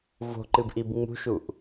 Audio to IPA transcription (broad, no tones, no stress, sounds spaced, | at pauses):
v o̤ ǃ ɨ b ʔ i b ŋ͡m ṳ ʃ u ʔ